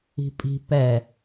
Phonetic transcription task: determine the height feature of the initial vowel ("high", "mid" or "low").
high